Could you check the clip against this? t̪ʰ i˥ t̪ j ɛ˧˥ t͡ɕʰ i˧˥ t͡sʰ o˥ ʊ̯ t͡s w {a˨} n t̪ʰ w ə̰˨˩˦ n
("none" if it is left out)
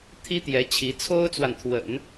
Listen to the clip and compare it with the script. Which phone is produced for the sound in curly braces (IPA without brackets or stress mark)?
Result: a˨